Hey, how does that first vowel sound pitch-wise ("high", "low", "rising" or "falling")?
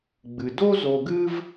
low